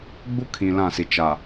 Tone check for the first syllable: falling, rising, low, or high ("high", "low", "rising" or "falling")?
high